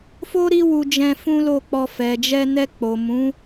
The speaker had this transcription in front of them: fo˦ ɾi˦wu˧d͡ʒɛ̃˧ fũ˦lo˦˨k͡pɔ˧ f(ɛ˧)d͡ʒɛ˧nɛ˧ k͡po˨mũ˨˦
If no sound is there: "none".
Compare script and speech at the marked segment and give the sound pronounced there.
ɛ˨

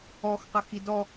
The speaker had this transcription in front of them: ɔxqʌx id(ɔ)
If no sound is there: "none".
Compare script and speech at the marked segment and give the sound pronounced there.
ɔ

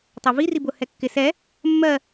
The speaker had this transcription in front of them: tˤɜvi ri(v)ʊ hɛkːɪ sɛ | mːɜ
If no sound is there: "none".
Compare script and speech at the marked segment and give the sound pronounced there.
b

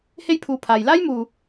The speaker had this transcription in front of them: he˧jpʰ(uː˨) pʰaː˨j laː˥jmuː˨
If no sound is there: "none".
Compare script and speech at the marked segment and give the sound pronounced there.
uː˨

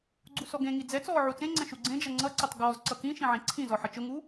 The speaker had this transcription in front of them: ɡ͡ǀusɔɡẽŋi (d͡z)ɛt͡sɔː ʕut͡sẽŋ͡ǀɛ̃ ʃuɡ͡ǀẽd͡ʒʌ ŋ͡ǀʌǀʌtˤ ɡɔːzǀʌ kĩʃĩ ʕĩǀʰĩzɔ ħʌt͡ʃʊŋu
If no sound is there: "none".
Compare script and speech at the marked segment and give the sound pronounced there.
d͡z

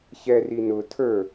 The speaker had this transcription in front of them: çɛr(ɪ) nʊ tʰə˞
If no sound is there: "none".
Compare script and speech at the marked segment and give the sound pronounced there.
i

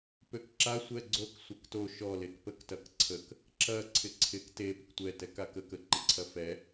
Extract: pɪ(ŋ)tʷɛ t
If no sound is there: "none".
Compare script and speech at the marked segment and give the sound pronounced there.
k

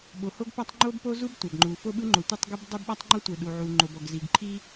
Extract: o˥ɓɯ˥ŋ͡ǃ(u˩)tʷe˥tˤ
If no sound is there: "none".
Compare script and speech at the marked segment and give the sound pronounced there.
o˩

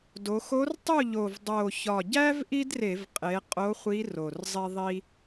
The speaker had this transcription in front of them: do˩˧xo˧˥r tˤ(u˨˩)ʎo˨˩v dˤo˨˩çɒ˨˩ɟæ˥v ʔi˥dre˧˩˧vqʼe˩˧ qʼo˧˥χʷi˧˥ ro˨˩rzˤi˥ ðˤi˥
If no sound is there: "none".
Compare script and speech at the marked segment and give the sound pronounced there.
u˥˨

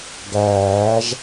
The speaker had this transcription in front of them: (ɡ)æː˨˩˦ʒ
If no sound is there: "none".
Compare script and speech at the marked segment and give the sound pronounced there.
ɡ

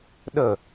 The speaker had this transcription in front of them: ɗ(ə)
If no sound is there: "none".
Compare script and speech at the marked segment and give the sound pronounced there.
ə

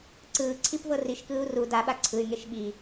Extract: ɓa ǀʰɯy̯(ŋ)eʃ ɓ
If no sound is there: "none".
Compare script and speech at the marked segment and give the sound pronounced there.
ŋ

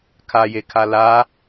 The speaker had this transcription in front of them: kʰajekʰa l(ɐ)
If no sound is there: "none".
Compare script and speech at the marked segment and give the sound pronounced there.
a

